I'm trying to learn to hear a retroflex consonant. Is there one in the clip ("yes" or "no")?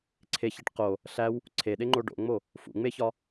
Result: yes